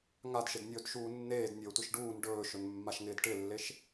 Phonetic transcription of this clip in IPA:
ŋ a d ʃ ɪ d nʲ ɵː d ʃ uː nː eː d nʲ ɵː tʷ ɪ ʃ ɖ uː n ɖ ɵː ʃ ɵ n mː a ʃ ŋ ɪː d ʈ ɪ lː e ʃ

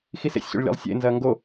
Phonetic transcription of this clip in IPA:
x i s ḛ sʲ ɕ o̰ ɭ lʲ a̰ lˠ sʲ ḛ n z ɐː ŋ ɡ o

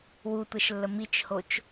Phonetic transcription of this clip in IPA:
w u tʷ ɛ ʃ lː ə m i t͡ʃ h o t͡ʃ

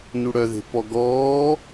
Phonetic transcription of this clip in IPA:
n u ɽ œ ð e̤ p ɔ ɡ ɔː

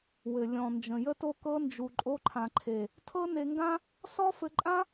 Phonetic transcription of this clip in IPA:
w ɘ˨ lʲ ɔ̃˨ n d͡ʒ ə̃˨ j ə˦ t o˦ k ɤ˧ n d͡ʒ u˨ ǃʼ o˧ ǃʰ ã˨ ǃʰ e˨ | tʰ ɤ˦ n e˧ ŋ ɡ ã˦ | s ɔ˦ f ɘ˧ ǃʼ ã˦

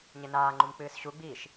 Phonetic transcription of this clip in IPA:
ɲ e n aː ŋ͡ǃ u m k͡p ɨː s ɕ u ɡ͡b iː ʃ

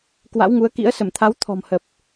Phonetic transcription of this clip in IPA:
k w a̰˧˥ w ŋ u˨˦ ə̯ k ḭ˧˥ ə̯ s ə˧˩ m t̪ʰ a˨˦ w t̪ʰ ɔ̤˨˩ m h ə˨˩ p̚

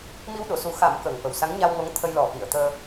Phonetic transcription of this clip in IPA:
m i˧ w ɗ o˨˩˨ s u˨˩˦ x a˨˩˦ m k əː˨˩ ŋ f ə˨˩ w s a˧˥ ŋ ɲ a˧ w ŋ o˧˥ ŋ t̪ʰ ə˧ j l ɔ˨˩˦ f i˨˩˨ ə̯ t̪ əː˧

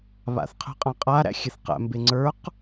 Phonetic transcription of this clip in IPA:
β a̰ θ qʰ ə̤ qʼ ã qʼ a ɾ æ̰ xʲ e θ q æ̰ m b e ŋ͡ǀ ə˞ q

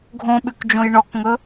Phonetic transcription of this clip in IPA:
ɡʱ õ ɓ ʉ k d͡ʒ õ j ɳ ɔ k ŋ ɵ

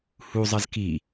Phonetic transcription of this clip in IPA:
h u zˤ ɜ z k i

